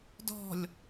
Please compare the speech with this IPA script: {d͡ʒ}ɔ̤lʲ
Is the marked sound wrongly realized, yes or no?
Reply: yes